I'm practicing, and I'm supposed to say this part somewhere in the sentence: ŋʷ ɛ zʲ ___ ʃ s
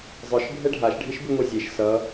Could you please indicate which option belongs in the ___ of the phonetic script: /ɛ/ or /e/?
e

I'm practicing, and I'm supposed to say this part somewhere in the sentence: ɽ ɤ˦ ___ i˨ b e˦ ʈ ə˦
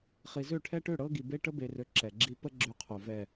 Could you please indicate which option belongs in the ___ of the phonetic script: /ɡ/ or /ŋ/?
ɡ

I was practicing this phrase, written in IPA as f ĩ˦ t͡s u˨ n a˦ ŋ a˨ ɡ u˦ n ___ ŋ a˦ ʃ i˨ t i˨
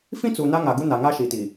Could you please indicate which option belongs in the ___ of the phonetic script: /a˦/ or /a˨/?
a˨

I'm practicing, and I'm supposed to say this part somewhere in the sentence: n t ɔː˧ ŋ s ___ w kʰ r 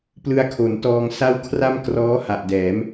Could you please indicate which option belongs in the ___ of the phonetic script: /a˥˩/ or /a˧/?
a˥˩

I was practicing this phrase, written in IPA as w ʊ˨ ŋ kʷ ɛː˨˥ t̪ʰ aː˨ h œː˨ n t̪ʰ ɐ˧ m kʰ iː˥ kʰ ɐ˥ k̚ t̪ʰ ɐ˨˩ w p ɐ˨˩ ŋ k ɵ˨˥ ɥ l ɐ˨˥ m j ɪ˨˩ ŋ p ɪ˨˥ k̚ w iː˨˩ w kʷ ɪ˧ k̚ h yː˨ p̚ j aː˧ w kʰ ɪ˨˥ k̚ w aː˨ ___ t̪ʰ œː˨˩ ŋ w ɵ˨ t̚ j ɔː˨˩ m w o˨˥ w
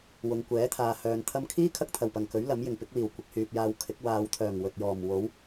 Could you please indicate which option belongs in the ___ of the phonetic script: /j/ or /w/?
w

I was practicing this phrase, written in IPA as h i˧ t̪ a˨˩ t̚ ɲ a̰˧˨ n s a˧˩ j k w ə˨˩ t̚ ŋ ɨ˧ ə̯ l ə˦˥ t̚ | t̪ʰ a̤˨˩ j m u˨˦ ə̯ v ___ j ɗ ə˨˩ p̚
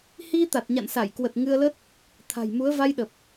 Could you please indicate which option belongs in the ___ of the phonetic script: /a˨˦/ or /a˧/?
a˧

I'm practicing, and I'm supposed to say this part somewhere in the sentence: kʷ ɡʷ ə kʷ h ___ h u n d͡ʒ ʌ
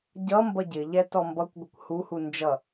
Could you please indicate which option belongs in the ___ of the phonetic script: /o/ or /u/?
u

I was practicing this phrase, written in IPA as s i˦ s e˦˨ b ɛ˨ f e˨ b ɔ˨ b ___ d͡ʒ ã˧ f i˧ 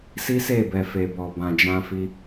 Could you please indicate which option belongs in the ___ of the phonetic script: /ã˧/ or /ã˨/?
ã˨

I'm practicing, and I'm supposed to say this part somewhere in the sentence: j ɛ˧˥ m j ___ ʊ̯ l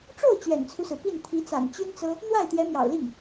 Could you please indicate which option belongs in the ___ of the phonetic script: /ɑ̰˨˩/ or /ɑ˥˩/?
ɑ̰˨˩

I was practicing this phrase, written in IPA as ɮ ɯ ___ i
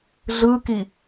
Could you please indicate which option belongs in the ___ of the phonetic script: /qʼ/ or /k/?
k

